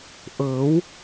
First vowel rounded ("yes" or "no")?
no